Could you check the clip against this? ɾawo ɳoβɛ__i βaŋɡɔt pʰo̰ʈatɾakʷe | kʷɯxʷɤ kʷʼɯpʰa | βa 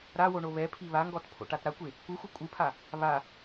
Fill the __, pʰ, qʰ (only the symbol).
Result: pʰ